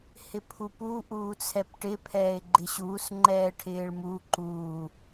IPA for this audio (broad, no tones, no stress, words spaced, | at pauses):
hɪpʰupu ʔuːt͡sʰɛpʈɪ pʰɛːɪ̯ɡ͡ǃɪɕuːs ŋ͡ǃɛːʈʰɪːɭmu ǃuː